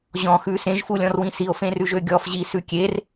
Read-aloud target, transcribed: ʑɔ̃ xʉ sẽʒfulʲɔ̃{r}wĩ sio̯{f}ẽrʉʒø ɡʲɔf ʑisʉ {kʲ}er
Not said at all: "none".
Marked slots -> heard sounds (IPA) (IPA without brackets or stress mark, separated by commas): r, f, kʲ